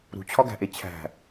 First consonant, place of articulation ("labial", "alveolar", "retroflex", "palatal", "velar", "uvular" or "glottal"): alveolar